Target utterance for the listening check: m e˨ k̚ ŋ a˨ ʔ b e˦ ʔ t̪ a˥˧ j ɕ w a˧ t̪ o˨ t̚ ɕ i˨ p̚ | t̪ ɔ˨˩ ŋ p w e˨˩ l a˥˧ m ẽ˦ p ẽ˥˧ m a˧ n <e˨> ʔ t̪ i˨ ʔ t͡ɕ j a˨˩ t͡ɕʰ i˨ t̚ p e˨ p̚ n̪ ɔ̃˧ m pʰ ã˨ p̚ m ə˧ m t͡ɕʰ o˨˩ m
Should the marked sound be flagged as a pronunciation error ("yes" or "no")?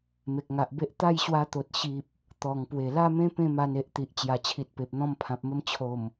no